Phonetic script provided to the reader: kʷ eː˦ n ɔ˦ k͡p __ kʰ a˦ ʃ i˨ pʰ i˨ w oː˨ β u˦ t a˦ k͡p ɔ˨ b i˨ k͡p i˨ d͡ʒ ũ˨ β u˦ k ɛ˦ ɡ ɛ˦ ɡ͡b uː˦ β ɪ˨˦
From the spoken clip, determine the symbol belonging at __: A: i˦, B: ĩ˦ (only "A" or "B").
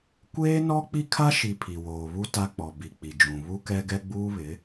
A